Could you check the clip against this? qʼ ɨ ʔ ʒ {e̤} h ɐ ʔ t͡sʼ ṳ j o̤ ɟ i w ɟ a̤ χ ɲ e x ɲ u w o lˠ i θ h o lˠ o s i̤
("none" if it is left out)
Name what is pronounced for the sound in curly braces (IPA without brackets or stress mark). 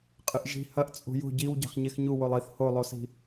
i̤